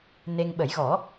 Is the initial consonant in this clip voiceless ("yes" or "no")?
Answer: no